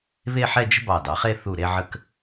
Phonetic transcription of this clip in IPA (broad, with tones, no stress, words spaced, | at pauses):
βe˥˧ħɛ˥˧d͡ʒə̤˥ bɑ˧˩dɑ˩˧χe˥˧ θu˧˩ɾe˧ʕə˧k